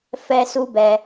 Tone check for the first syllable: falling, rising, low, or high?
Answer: high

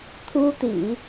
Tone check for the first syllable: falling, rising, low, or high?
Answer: high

